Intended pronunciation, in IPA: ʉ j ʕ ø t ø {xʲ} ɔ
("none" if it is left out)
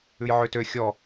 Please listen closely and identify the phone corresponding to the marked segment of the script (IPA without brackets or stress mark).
xʲ